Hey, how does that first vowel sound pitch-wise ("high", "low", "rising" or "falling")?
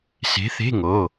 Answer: rising